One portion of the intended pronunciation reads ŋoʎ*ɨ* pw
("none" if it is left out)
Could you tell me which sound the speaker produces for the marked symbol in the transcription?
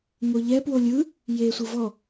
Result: ɛ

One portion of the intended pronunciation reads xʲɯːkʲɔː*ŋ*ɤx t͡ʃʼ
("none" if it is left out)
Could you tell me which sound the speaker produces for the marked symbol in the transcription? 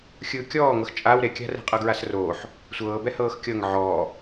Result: ŋ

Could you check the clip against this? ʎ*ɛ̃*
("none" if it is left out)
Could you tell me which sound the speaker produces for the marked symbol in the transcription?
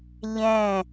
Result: ɛ̃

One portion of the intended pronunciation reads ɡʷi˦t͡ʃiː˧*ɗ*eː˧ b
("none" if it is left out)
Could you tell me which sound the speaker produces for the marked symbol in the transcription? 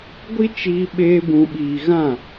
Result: ɓ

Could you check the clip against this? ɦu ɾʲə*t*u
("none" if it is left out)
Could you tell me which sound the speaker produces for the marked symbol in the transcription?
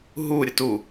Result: t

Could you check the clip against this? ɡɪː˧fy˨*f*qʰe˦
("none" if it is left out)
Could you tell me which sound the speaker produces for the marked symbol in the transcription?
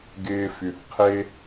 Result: θ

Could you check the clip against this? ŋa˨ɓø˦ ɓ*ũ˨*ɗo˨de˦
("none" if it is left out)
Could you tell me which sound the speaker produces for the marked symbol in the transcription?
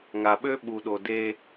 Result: u˨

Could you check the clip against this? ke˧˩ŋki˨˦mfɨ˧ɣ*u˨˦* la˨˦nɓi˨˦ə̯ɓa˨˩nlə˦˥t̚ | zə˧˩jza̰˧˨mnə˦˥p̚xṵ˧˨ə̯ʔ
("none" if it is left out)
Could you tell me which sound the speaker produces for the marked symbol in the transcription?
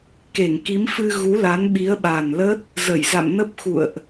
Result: u˨˦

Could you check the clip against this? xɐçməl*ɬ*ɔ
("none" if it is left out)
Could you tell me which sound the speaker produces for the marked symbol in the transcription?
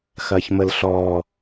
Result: ɬ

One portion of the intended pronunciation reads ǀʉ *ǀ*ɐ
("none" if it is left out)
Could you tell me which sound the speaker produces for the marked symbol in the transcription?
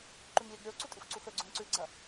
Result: ɡ͡ǀ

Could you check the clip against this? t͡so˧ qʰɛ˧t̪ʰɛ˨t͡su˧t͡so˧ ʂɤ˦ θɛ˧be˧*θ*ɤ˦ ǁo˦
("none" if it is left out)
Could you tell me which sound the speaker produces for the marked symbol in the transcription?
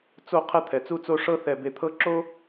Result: t̪ʰ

